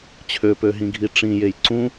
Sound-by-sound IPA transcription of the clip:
t͡ɕʰ ø p ø ɦ ĩ ɡʱ i ʈ͡ʂ ĩ j e j ǀ ũ

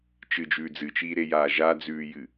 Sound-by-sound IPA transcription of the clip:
t͡ʃ ɨ d͡ʒ ʉː d͡z ɨ t͡ʃ iː ɾ e j aː ʒ a d͡z ʉː j ɨ

